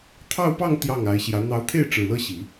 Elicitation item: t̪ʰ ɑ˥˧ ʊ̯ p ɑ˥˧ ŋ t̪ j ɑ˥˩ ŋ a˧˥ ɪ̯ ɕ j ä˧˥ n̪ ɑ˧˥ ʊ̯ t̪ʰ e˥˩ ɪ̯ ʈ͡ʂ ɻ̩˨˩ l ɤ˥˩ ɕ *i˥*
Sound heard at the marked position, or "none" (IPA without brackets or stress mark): i˨˩˦